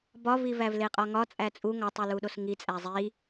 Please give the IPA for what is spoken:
b ɒ v i v æ v l e qʼ ɒ ŋ ɒ t͡sʼ æ t͡sʼ u ŋ ɒ tˤ u l u ɗ o s ŋ i t͡sʼ æ zˤ i

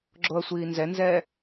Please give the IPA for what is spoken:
ɡ͡ǁ o ɐ̯ sʷ iː n z ɛ n z ɛː

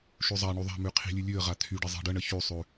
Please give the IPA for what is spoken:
ʃ ʉ zˤ a ɳ y ðˤ a̤ m ʉ qʰ i̤ lʲ ʉ lʲ ʉ ə̯ ʁ a t̪ʰ y ɖ ɪ zˤ i̤ ɖ ə ɳ ə ç y sˤ ʉ

